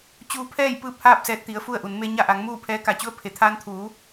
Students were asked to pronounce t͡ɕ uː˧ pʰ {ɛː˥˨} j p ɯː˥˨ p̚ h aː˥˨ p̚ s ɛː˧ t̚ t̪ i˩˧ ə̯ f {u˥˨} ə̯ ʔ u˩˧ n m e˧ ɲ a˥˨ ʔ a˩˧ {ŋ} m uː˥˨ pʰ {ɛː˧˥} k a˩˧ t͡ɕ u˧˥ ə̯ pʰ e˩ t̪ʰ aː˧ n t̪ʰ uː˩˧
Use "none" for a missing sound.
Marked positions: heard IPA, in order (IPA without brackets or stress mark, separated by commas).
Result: ɛː˥˨, u˥˨, ŋ, ɛː˧˥